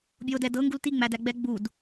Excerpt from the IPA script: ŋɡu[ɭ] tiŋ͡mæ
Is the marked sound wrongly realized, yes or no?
yes